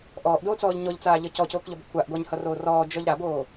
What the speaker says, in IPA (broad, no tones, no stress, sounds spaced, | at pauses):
ʔ ɔː ʔ d oː t͡s ɔː ʎ ɲ ɔ ʎ t͡s aː ʎ ʌ c ɔ c oː k ʎ ɔ b kʷʰ a ʔ ɡʷ a ɲ h ʌ r oː r ɔː d͡ʒ ɔ ʎ ɾ a b oː